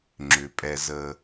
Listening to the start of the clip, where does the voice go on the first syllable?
low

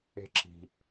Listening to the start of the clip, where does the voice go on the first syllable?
high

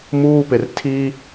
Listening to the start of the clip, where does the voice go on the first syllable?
high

